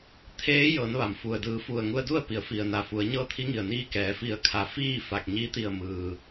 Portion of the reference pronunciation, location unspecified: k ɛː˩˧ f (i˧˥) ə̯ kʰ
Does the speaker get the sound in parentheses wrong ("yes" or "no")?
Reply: yes